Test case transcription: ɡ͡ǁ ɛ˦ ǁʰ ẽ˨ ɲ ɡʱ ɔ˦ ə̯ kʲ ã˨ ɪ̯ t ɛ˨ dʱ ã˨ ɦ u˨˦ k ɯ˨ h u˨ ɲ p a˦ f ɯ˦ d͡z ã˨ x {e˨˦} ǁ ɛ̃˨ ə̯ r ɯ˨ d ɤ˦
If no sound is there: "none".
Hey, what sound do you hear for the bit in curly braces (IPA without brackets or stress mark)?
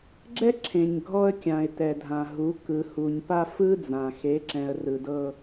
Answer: e˨˦